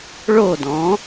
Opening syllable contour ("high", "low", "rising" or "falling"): falling